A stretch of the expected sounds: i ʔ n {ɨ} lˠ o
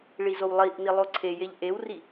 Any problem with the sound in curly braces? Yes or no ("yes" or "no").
yes